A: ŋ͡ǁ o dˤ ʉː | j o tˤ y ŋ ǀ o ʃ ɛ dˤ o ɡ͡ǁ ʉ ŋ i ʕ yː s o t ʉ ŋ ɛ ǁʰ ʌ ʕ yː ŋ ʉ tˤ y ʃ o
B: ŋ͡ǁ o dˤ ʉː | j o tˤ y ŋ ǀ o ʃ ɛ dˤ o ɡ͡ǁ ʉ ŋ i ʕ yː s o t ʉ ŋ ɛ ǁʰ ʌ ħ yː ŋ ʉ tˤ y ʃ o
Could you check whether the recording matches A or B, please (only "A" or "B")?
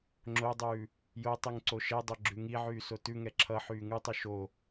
B